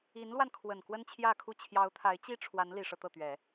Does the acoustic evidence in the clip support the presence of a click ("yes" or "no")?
no